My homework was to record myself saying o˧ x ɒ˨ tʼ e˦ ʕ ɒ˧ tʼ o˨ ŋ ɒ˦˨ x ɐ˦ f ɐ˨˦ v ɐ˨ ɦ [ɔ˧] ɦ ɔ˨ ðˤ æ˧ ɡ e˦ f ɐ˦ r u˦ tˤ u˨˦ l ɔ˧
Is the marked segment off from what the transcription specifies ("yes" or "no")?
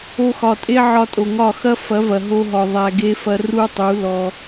yes